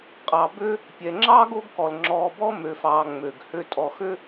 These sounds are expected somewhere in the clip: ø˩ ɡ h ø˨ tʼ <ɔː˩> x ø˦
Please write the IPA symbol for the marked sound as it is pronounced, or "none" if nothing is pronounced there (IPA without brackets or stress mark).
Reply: ɔ˩